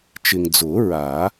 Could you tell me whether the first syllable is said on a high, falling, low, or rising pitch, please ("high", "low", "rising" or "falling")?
low